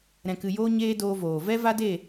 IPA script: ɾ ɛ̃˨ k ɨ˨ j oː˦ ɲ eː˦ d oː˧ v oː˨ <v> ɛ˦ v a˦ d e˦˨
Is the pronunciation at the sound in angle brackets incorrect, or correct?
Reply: correct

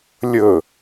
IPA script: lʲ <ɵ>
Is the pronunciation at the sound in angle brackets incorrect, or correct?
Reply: correct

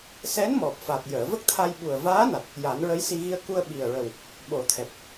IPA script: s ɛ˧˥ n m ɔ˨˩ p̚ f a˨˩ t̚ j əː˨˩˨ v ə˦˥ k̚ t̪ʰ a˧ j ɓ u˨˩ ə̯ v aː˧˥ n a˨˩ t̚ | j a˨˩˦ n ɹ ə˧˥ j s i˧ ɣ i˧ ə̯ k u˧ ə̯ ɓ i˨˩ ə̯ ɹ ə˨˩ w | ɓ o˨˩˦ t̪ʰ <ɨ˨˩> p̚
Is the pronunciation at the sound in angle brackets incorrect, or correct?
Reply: incorrect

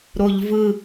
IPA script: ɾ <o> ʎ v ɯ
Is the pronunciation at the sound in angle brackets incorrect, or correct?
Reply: correct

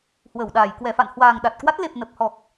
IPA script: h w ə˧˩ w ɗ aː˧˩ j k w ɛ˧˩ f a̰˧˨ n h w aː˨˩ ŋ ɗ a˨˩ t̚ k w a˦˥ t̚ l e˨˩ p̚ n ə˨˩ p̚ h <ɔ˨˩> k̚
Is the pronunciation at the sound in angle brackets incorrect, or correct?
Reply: correct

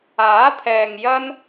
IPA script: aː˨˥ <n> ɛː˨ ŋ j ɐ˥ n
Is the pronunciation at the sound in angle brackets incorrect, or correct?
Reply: incorrect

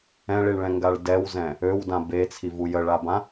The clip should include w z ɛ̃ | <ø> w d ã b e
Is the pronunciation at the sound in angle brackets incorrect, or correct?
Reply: correct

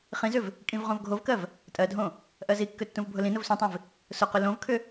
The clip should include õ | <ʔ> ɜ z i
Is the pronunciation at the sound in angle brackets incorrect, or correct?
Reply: correct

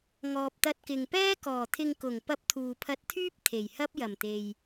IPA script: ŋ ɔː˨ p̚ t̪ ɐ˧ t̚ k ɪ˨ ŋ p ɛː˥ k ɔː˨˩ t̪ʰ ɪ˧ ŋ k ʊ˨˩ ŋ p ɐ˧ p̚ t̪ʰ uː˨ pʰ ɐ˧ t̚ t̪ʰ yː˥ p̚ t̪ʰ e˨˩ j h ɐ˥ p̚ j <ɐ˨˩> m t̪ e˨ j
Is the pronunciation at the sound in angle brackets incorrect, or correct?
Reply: correct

